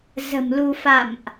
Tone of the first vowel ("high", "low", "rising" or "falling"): low